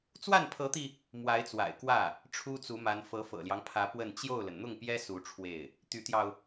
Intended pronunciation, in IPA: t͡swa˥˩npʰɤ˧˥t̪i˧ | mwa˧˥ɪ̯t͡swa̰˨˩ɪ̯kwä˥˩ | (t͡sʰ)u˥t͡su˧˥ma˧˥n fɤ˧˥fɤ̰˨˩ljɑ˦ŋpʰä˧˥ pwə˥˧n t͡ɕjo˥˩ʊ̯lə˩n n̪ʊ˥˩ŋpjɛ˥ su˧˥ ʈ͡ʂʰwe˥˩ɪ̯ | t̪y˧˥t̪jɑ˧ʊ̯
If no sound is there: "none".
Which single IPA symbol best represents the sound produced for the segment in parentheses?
ʈ͡ʂʰ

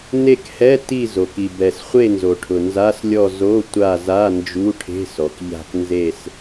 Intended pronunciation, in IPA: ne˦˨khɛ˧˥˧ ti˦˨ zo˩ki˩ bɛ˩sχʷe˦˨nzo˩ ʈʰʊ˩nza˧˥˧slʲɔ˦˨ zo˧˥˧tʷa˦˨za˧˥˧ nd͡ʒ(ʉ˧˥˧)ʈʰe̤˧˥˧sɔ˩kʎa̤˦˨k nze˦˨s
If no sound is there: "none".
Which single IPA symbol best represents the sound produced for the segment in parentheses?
u˧˥˧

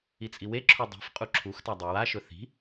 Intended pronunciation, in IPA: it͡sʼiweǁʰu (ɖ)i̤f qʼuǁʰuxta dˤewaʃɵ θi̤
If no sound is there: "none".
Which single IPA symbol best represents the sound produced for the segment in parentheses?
dˤ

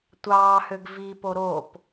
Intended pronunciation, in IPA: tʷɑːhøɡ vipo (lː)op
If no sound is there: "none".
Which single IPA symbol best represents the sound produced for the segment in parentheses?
ɾ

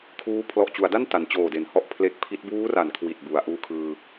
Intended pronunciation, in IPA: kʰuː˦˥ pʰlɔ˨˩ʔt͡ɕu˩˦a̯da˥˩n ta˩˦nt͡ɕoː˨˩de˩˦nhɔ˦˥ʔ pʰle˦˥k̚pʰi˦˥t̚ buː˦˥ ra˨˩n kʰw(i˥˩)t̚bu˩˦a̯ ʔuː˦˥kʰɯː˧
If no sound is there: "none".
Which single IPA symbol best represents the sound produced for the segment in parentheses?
i˨˩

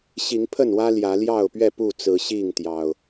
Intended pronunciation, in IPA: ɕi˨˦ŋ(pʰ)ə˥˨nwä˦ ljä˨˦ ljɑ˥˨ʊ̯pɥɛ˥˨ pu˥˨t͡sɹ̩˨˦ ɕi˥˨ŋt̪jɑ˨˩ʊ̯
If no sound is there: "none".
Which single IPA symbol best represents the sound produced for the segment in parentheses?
pʰ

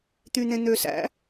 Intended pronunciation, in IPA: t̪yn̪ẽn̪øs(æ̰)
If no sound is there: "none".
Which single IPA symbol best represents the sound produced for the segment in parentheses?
æ̰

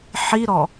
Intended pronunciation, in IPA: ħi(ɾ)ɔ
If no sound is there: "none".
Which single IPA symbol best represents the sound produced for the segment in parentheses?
ɾ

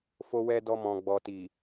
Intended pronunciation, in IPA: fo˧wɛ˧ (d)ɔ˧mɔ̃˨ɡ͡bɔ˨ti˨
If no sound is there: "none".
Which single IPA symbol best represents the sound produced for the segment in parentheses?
d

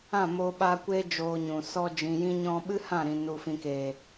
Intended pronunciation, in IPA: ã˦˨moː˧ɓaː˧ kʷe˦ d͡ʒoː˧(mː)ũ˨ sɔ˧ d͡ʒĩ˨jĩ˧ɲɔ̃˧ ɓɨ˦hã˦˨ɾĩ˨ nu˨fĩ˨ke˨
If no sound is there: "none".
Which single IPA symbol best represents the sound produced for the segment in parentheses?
ɲ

